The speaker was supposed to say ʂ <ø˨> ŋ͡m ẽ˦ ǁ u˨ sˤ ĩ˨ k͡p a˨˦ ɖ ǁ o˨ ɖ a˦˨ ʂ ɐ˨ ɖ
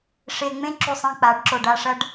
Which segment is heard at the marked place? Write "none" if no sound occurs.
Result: e˨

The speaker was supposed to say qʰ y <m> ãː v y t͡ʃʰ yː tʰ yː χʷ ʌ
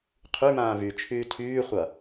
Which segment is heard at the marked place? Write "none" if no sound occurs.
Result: m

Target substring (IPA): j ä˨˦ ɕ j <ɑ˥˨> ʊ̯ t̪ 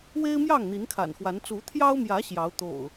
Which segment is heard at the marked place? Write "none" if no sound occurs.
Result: ɑ˨˦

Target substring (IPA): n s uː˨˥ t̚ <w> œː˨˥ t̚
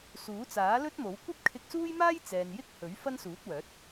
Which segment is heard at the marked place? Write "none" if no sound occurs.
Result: w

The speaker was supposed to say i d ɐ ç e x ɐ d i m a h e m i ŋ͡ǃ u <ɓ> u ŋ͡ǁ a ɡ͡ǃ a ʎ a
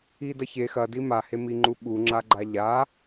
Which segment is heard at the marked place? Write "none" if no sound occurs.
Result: ɓ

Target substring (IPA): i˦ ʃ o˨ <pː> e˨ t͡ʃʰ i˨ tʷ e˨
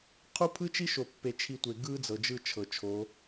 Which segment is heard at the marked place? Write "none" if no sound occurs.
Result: pː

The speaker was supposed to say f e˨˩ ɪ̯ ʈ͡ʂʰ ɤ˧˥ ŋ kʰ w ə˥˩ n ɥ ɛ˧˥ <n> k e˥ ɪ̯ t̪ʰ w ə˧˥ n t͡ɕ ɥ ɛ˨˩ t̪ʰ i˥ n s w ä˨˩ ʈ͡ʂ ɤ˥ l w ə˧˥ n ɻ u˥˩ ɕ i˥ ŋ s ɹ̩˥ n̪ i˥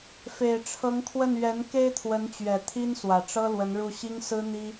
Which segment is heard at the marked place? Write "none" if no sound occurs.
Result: n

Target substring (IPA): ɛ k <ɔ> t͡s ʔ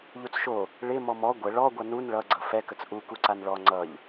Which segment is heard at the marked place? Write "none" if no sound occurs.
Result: ə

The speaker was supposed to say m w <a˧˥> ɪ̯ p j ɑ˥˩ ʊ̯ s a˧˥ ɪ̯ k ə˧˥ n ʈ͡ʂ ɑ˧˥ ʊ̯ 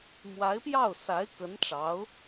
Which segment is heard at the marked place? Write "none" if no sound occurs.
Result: a˧˥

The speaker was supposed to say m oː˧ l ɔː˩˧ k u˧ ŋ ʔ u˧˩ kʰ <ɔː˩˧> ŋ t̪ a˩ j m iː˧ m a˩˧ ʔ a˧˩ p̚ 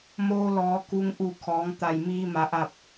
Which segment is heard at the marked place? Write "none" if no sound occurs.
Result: ɔː˩˧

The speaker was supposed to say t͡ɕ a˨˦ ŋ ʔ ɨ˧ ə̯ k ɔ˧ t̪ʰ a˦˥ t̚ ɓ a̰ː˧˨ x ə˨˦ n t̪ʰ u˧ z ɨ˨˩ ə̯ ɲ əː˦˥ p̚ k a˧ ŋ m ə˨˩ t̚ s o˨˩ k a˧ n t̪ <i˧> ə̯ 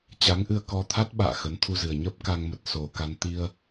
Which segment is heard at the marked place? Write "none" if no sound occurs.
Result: i˧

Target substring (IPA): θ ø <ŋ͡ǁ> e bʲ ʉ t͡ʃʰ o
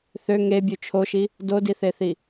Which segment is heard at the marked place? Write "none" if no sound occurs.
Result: ŋ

